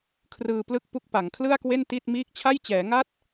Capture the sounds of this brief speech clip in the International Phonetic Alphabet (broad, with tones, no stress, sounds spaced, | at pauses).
kʰ r ɯː˧ p l ɯ˥˩ k̚ p u˥˩ k̚ p a˩˦ ŋ kʰ l ɯ˥˩ a̯ k w e˥˩ n t i˥˩ t̚ m iː˦˥ k̚ t͡ɕʰ a˥˩ j t͡ɕ ɛː˩˦ ŋ a˥˩ t̚